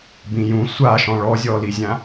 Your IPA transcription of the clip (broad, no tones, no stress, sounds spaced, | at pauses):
b ĩ j ũ sʷ a ʃ ɔ̃ ɭ ɔ zʲ ɔ l i zʲ ã